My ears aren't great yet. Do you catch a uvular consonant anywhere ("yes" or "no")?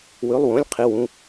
yes